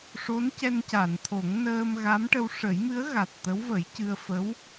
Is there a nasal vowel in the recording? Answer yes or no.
no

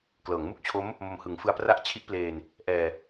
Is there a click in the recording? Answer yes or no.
no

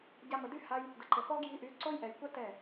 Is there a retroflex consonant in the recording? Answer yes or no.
no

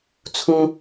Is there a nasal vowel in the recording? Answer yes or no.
yes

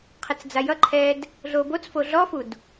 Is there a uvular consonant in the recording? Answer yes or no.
yes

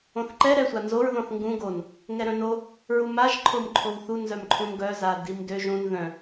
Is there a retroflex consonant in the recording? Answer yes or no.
no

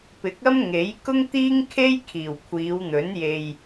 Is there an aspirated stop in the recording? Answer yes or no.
yes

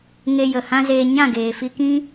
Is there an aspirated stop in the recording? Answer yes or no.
no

